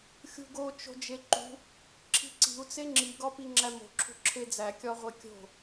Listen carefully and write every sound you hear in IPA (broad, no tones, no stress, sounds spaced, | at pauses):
xʲ ṳ ɡ o t͡ʃ o̤ d͡ʒ e ǃ ṳ | ǁʰ i̤ ǀ i̤ u̯ t͡s e ŋ͡ǁ i ɡ ɒ p i ŋ͡ǁ æ m o̤ ǁʰ ṳ ǁʰ e d͡z æ kʲ ɒ ʁʷ e kʲ o̤